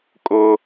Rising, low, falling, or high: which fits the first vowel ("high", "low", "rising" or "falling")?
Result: high